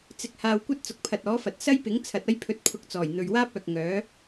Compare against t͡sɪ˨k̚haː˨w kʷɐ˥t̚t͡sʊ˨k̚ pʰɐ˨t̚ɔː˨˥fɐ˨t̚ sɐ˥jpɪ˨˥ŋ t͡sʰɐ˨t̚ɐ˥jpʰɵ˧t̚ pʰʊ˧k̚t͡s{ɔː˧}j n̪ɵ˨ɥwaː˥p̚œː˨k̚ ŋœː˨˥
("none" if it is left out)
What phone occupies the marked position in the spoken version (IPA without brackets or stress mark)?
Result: ɔː˨˩